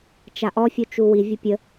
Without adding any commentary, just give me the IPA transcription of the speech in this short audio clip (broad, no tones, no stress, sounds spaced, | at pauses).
t͡ʃ a ʔ ɔ fʲ u t͡ʃ u w i vʲ ə pʲ ə